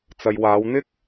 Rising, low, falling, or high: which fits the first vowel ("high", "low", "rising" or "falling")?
low